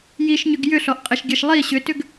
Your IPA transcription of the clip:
j i ʃ ɲ ʏ ɡ j ʏ ɬ ɔ ʔ qʼ ɛ ʃ ɡʲ ɛ ʃ lˠ i ɕ ʏ t ʏ ɡ

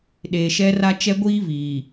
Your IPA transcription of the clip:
ɗ eː˨ ʃ ɛ˦ r a˦ t͡ʃ ɛ˦ ɡʷ iː˦ v iː˨

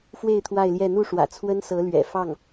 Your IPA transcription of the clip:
f w e˥˧ ɪ̯ t̪ʰ w a˥˧ ɪ̯ l j ɛ˥˧ n̪ u˥˩ ʂ w ä̰˨˩ t͡sʰ w ə˥ n s ɤ˧˥ l ɥ ɛ̰˨˩ f ɑ˥˩ ŋ

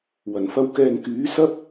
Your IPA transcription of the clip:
w ɐ˨˩ n f ɐ˧ w k ɛː˨ ŋ k yː˨˥ s ɐ˥ p̚

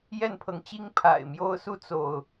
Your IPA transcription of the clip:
j ɛ˥˨ n pʰ ɤ˨˦ ŋ t͡ɕ i˦ ŋ pʰ a̰˨˩ ɪ̯ m j o˦ ʊ̯ s u˦ t͡s o˥˨ ʊ̯

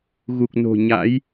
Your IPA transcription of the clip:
ɣ u˨˩ k̚ n o̤˨˩ ɲ a̰˧˥ j

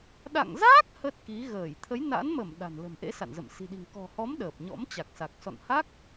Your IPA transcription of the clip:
ɗ a̰˧˨ ŋ z aː˦˥ k̚ h ə˦˥ t̚ k i˨˦ ɣ əː˧˩ j t̪ʰ ə˨˦ j n a̰˧˥ n m ə˧˩ m ɗ a̤˨˩ n l ə̤˨˩ m ʔ ḛ˧˥ s a̰˧˨ n z ə̰˧˨ m s i̤˨˩ ɗ i̤˨˩ ŋ k ɔ̤˨˩ h ɔ˨˦ m ɗ əː˨˩ p̚ ɲ ɔ̰˧˥ m t͡ɕ a˨˩ k̚ s a˨˩ k̚ s ɔ̰˧˨ n h a˦˥ k̚

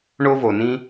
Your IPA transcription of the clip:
ɳ o˥ v o˩ n ĩ˥

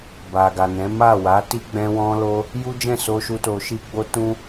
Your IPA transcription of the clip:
b a˨ ɡ a˨ n ɛ̃˨˦ m a˦˨ w a˨˦ t i˦ ɡ͡b ɛ̃˧ w ɔ̃˧ l o˧ | j u˦ d͡ʒ ɛ̃˦˨ s o˧ ʃ u˧ t o˧ ʃ i˦ ɡ͡b o˦ t ũ˦

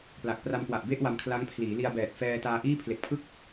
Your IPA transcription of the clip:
p l a˨˩ k̚ p r a˧ m k w a˨˩ ʔ b e˥˩ ʔ w a˧ m kʰ l a˦˥ ŋ pʰ l iː˩˦ l i˧ a̯ b ɛː˨˩ t̚ f ɛː˧ t aː˧ ʔ iː˥˩ pʰ l e˨˩ k̚ pʰ ɯ˥˩ k̚

